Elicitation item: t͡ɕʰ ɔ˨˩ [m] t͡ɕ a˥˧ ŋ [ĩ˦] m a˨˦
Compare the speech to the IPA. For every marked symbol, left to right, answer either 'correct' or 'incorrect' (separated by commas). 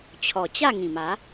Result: incorrect, incorrect